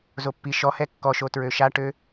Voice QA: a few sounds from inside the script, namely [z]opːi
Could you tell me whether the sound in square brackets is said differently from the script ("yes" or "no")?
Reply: no